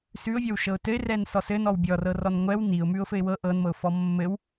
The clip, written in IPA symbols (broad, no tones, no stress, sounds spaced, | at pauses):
s ʉ ʊ̯ vʲ ɤ w ʃ ɤ ʊ̯ t ɘ ɪ̯ r ɛ n s ɔ s ɘ n ɔ w bʲ ɔ r ɤ r ɔ n ŋʷ ɛ w n i ʊ̯ m ʉ ʊ̯ f ɘ ɪ̯ w ɤ ʔ ɤ n m ɤ ʊ̯ f ɔ mː ɘ w